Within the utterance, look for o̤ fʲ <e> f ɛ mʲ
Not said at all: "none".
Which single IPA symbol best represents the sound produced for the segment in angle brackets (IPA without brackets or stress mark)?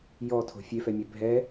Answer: e